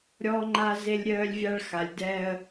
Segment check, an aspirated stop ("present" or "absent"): absent